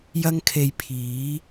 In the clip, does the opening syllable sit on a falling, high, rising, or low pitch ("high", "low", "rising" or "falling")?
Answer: high